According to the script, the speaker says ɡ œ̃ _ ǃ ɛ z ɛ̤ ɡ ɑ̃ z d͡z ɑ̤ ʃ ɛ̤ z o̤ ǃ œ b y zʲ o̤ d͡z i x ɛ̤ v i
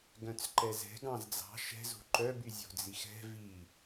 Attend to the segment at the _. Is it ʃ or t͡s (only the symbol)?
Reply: t͡s